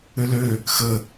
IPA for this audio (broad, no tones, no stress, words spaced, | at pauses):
ʏlø | xə